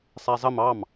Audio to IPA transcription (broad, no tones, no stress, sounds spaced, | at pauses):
sˤ æ zˤ ə m ɑ m